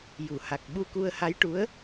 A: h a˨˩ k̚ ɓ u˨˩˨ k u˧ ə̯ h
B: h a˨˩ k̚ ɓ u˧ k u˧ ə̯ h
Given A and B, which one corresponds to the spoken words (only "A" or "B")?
B